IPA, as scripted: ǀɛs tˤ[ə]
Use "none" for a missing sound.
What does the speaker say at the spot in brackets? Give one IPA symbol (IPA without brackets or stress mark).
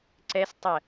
ə